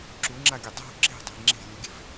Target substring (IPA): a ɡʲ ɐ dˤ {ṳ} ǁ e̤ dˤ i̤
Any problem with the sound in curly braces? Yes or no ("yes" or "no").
yes